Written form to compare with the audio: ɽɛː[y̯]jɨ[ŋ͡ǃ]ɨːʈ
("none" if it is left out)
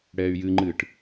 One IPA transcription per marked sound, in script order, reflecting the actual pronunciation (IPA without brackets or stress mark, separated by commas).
y̯, ŋ͡ǃ